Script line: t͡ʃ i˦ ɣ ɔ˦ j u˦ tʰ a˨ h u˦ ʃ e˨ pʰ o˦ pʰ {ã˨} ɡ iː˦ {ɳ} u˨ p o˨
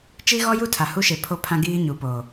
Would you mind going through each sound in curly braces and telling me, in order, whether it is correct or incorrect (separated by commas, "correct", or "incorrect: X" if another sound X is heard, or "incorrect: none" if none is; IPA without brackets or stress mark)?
incorrect: ã˦, incorrect: ɲ